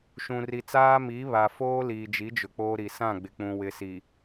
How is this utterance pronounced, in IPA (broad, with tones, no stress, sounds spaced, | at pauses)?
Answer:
ʃ ũ˨ r i˨ t͡s aː˦ m i˨˦ β a˨ f oː˦ l iː˨ d͡ʒ i˨˦ d͡ʒ ʊ˨ k͡p oː˦ ɾ i˨ s ã˦˨ ɡ͡b ɪ˨ k͡p ũ˨ w ɪ˨ s i˨